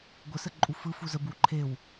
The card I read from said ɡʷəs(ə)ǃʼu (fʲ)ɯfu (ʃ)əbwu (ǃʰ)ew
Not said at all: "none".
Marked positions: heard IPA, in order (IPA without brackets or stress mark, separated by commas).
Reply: ə, f, z, ǃʰ